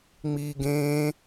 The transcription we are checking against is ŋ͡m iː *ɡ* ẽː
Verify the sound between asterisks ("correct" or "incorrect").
correct